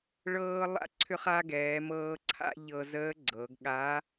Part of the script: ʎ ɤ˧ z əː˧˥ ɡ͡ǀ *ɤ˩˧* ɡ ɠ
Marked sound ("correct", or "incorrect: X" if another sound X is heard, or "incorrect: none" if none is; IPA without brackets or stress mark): correct